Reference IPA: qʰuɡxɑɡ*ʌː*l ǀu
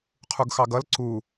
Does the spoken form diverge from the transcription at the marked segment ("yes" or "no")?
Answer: yes